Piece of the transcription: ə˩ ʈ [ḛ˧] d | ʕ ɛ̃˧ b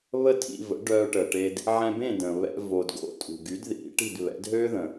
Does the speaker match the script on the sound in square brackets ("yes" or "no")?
no